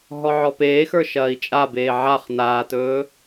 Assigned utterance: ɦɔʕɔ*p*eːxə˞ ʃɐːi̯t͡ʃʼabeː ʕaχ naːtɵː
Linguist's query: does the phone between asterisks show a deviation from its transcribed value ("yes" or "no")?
no